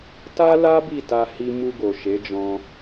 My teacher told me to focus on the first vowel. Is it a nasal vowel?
no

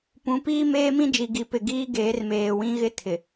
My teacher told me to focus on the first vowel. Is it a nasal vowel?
yes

